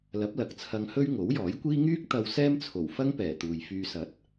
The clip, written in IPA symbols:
lɐ˨˥p̚lɐ˨k̚t͡sʰɐ˧ŋhɵ˥ɥ ŋo˨˥wjɔː˨˥jkʷiː˥ ŋyː˥k̚t̪ɐ˧w sɛː˥mt͡sʰo˨˩wfɐ˥ŋ pɛː˨˩t̪uː˨jfyː˧ sɐ˨˥t̚

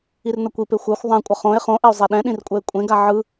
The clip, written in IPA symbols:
irnʌkʷipe xʷɛxʷ ðˤãkʷʼʌ χõe̯ χõʔɛo̯ zˤeɗɛ̃ɗĩr kʷʼɛe̯kʷʼẽɡa ʕɯ

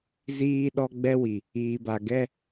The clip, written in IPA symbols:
ziː˦ɗɔ˦ ɡ͡bɛ˦wi˨ | iː˨ba˨ ɡɛ˦

